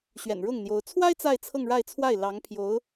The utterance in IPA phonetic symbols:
ɕɥɛ̰˨˩nɻʊ˥˩ŋn̪jo˧˥ʊ̯ t͡sʰwa˥ɪ̯ t͡sa˥˧ɪ̯t͡sʰɤ˥˧ŋ ɻa˥˧ɪ̯t͡sʰwa˥˩ɪ̯ lɑ˧˥ŋpʰjo˧˥ʊ̯

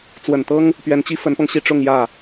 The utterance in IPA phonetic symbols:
t͡swə˨˩nt̪ɤ˥ŋ | pɥɛ˧˥nt͡ɕi˥ fə˧˥npɤ˧ŋɕi˥˧ʈ͡ʂʊ˥˧ŋ jä˥˩

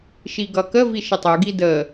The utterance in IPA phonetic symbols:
ʃiɡʌkə viʃɪtˤu ɡidə

